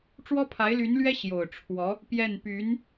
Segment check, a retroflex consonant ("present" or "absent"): present